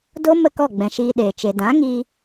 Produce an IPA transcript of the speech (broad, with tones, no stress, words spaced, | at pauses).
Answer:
do˦ mə˦˨kɔ˦˨ɡ͡bɛ̃˨ ʃiː˧ɗeː˨ t͡ʃe˨dã˨˦ ŋiː˧